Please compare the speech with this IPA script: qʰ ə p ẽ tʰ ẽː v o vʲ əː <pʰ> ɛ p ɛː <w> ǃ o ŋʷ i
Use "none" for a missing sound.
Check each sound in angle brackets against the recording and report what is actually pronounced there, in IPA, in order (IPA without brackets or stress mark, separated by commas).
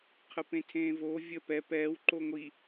p, w